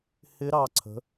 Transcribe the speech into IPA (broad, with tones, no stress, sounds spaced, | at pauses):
h ɪ˧˥ ɾ ɑ˩˧ ǀʰ ə̤˩˧